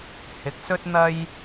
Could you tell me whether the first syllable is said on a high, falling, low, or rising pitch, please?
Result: rising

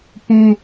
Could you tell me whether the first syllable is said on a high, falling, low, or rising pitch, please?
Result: high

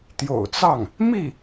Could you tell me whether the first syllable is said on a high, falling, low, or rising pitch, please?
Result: low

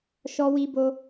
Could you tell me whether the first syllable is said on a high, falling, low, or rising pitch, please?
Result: high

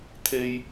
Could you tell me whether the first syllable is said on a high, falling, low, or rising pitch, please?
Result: high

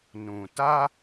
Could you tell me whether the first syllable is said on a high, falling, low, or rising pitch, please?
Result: low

